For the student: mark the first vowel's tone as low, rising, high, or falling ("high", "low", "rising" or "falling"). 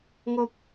high